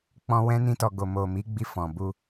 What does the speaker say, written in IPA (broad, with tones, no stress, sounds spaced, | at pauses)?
k͡p ɔ̃˧ w ɛ̃˦ n ĩ˦ t ɔ˧ ɡ o˨ m o˨ m i˨˦ ɡ͡b i˧ f ɔ̃˨ b u˧